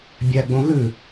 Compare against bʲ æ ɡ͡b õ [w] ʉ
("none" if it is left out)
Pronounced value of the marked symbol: ɣ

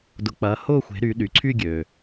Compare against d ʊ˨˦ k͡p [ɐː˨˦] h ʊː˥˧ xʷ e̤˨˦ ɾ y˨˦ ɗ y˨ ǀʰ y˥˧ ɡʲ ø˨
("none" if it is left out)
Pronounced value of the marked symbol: ɐː˨˦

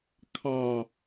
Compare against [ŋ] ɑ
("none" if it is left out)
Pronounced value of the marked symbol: kʰ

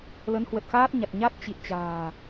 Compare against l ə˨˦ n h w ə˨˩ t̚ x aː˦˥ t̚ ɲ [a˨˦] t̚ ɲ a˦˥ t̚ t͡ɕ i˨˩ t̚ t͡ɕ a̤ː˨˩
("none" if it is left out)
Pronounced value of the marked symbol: a˨˩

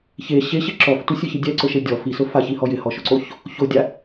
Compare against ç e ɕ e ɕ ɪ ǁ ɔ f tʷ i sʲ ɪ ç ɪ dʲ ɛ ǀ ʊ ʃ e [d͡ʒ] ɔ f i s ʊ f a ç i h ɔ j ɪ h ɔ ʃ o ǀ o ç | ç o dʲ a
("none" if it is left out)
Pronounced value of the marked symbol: dʲ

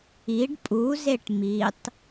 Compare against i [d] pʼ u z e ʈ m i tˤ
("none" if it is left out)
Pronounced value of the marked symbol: ɖ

